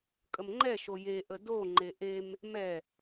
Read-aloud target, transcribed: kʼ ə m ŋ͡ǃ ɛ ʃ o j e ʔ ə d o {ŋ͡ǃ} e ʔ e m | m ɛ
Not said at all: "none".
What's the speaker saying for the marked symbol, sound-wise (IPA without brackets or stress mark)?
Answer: ŋ͡ǃ